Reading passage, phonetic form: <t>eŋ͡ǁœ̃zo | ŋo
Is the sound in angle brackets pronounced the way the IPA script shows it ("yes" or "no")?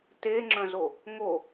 yes